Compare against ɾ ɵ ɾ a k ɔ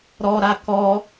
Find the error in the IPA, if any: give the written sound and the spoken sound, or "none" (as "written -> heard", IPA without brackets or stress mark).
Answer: ɵ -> ɔ